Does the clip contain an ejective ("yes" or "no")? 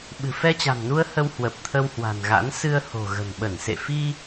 no